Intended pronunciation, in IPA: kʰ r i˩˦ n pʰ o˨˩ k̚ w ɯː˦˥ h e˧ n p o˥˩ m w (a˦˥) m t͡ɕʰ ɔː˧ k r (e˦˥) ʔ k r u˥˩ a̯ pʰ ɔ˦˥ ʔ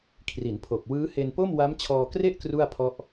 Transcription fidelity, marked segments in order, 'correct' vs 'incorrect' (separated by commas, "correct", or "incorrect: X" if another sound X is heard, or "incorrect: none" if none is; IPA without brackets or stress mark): correct, incorrect: e˥˩